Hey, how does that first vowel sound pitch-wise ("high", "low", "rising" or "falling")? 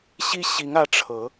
high